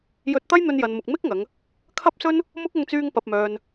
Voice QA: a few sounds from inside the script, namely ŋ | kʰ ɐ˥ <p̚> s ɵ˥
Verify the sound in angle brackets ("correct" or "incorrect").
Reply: correct